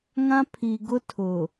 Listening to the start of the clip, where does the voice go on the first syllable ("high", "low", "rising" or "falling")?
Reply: high